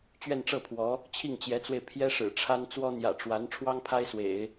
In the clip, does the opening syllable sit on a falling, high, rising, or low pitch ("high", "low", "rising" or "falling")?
falling